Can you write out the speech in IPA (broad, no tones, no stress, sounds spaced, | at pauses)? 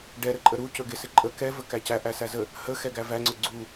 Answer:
ɖ ɛ ɾ ə ǃʼ ə ɾ u c ɵ ɡ ɪ s ɪ ǃʼ ə k ɛ v ə k æ c æ ʔ æ s æ z ə | h ə x ɛ ɡ æ v æ ŋ͡ǀ ɵ ɡ͡ǀ u